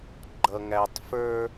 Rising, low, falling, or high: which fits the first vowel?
low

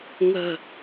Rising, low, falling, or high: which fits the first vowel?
low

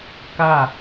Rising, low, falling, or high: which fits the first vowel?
falling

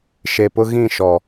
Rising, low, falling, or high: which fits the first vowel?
low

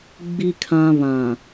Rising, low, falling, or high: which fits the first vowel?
low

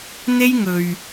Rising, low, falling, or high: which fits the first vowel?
high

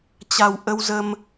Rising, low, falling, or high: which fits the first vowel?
low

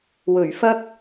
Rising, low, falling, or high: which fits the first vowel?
low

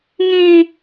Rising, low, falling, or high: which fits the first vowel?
high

